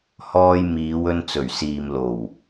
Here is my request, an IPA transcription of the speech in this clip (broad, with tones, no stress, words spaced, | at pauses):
hɔː˧jmiː˨˧wɵ˧n t͡sɵ˨˩ɥsiː˨mlo˨˩w